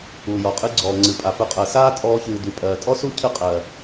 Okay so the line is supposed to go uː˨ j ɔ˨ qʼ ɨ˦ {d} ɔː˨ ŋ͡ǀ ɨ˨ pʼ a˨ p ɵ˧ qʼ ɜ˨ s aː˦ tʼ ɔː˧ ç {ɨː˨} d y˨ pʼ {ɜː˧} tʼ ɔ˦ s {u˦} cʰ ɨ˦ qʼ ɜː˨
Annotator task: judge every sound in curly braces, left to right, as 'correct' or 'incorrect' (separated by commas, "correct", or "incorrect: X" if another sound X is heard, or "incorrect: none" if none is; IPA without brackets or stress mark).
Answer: incorrect: ɡ͡ǀ, correct, incorrect: ɜː˨, correct